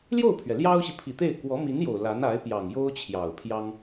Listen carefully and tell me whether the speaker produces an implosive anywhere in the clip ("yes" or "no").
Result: no